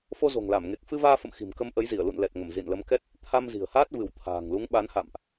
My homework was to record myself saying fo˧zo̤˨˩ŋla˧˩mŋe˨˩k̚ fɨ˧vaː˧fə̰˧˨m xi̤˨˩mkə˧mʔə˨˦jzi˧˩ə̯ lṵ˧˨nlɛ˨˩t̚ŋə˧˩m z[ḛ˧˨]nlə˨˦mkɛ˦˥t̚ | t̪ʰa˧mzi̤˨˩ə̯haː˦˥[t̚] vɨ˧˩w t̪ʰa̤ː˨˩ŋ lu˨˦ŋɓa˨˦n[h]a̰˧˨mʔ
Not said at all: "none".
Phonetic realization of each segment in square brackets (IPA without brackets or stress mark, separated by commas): ḭ˧˨, t̚, h